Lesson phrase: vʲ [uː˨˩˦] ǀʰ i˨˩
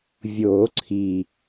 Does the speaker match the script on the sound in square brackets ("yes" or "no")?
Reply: no